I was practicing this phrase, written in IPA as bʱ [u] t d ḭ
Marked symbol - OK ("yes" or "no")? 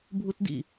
yes